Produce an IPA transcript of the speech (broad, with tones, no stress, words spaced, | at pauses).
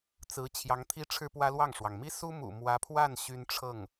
t͡sɹ̩˧˥ t͡ɕʰjɑ˧˥ŋt̪ʰi˥ ʈ͡ʂʰɻ̩˥pwä˥lwɑ˥˩ŋʂwɑ˩ŋ mi˥su˥mṵ˨˩ mwä˧˥pʰwa˥˩n ɕy˥n ʈ͡ʂʰɤ˥˩ŋ